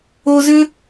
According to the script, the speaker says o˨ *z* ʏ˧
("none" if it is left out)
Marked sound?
z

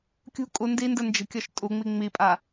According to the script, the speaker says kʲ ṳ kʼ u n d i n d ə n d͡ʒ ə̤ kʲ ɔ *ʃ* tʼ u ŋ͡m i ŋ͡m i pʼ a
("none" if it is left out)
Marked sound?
ʃ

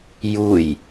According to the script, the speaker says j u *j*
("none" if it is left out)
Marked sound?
j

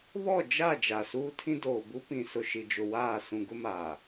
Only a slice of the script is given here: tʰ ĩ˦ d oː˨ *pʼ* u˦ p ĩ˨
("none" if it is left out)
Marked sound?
b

